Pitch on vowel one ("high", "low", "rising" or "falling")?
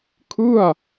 falling